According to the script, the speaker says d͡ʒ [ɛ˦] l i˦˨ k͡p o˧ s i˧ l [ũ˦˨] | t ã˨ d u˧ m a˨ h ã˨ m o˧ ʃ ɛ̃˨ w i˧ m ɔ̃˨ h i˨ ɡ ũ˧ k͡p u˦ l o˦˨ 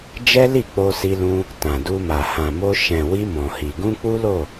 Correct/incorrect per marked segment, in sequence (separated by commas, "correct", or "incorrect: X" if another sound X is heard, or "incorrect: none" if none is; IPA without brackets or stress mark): correct, incorrect: ũ˧